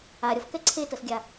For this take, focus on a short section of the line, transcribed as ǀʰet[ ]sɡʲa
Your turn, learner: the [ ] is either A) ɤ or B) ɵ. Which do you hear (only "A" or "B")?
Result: A